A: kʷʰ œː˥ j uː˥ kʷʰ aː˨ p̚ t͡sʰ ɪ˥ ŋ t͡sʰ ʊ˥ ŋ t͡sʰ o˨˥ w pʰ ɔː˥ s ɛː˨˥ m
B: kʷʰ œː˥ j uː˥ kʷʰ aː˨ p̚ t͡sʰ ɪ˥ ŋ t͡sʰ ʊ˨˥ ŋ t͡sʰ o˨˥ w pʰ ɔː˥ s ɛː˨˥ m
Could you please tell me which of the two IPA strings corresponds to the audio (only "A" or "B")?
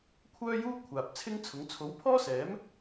B